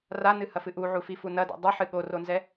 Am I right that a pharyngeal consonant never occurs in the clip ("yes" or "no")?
no